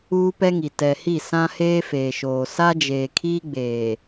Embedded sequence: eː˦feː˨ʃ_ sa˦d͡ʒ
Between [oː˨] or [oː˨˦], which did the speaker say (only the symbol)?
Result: oː˨